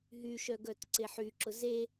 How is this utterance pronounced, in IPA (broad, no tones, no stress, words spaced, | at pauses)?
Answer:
ɦyʃœ ɡœtǀeħyǁʊ ze